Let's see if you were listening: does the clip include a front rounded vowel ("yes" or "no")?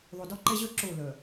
yes